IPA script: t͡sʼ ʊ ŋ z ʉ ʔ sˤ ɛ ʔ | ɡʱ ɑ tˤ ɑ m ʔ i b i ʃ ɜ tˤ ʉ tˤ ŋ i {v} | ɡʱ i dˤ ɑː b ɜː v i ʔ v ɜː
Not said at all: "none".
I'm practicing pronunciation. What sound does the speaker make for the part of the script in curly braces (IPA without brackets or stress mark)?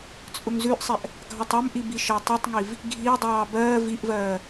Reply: v